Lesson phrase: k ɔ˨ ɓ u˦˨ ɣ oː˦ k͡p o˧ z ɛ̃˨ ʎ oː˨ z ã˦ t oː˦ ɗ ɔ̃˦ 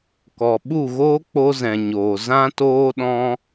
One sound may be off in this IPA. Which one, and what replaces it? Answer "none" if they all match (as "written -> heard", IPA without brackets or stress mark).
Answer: ʎ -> ɲ